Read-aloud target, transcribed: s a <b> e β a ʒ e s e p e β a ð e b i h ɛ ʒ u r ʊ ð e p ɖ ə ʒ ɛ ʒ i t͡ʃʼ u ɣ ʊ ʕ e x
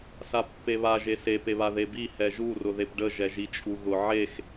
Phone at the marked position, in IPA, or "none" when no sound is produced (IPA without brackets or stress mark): pː